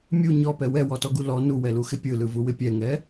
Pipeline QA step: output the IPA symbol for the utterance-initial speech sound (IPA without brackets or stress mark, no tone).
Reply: mʲ